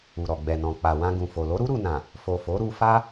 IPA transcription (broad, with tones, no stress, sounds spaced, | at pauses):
u˨ ɾ ɔ˨ ɡ͡b ɛ˨ n ɔ̃˨ k͡p a˨ w ã˧ ɡ ũ˨ f o˨ l o˨˦ ɾ u˦ ɾ u˧ n ã˨ | f o˨ f o˨˦ ɾ u˧ f a˦